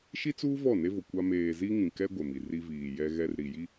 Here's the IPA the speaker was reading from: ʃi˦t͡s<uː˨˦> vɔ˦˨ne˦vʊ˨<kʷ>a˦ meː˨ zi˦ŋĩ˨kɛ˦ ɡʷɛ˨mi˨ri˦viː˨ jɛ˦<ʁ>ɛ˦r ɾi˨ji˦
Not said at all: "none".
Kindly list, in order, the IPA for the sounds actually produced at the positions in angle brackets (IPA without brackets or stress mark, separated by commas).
uː˦, kʷ, ɣ